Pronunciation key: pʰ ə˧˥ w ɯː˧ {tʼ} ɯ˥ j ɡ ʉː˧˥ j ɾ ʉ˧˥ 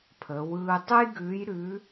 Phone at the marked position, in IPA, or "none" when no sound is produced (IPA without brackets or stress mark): tˤ